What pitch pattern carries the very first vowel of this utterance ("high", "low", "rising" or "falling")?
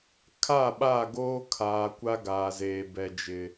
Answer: falling